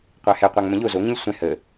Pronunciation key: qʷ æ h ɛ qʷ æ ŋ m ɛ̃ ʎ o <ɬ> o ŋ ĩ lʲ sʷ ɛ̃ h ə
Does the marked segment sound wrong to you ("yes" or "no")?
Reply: yes